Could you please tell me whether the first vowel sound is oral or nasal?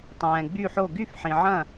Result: nasal